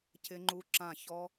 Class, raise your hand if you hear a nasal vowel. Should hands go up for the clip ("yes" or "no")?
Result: yes